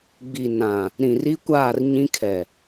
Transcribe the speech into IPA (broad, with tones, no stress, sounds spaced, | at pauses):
ɡ͡b i˨ n ã˨ | ɾ ĩ˨ r i˦ kʷ aː˦˨ r ɲ ĩ˦ kʰ ɛ˨